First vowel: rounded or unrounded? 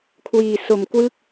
unrounded